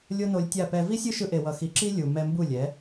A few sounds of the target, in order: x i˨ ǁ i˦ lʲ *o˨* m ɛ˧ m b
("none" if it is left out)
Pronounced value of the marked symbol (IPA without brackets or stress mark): u˨